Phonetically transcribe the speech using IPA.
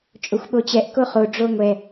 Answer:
t͡ʃʼ o xʷ ɓ o t͡ɕ ɛ ʔ k o χ o ɖ͡ʐ o ŋʷ ɛ

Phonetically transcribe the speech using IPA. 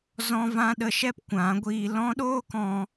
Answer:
z ɔ̃˦ v ã˦ ɗ ə˧ ʃ ɛ˦ p kʷ ã˨˦ ɡʷ iː˧ l ɔ̃˦ ɗ oː˦ k ɔ̃˧

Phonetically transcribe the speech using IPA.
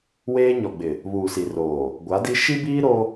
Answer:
w eː˦ ɲ ɔ˨ ɡ͡b ɪ˨ | β uː˨ s i˨ r oː˨ | ɡʷ a˨˦ d i˦ ʃ i˦ b iː˦ ɾ o˦

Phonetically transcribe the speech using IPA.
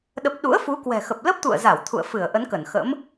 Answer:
ɗ ə˦˥ p̚ ɗ ṵ˧˥ ə̯ f u˨˦ k w ɛ̤˨˩ x ə˨˩ p̚ l ə˦˥ p̚ t̪ ṵ˧˨ ə̯ z a˧˩ w t̪ʰ ṵ˧˨ ə̯ f ɨ˧˩ ə̯ ʔ ə˨˦ n k ə˧˩ n x ə̰˧˥ m

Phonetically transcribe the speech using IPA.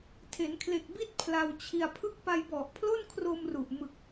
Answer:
tʰ e˩˦ n kʰ l e˨˩ k̚ b i˥˩ t̚ pʰ l a˧ w t͡ɕʰ i˧ a̯ pʰ ɯ˦˥ k̚ p a˧ j b ɔ˨˩ ʔ pʰ l o˥˩ n kʰ r o˧ m r u˨˩ ʔ m ɯ˨˩ k̚

